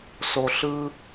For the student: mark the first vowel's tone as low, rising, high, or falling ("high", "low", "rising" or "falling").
low